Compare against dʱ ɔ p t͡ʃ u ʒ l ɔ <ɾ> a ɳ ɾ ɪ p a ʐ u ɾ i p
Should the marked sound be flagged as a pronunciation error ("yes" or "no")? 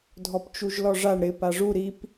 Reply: yes